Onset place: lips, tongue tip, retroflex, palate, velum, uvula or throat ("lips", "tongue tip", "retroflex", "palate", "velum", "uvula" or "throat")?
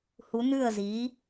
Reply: throat